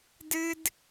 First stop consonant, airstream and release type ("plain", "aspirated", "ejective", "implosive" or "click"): plain